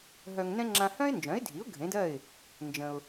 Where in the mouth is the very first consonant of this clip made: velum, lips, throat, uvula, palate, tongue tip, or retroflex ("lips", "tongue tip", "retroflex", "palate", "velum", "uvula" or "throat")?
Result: throat